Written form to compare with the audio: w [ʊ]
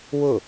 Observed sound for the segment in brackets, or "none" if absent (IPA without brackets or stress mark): ʊ